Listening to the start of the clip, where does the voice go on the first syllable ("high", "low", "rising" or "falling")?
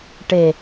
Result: low